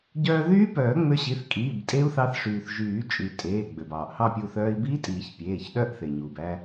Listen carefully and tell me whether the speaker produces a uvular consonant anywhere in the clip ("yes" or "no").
no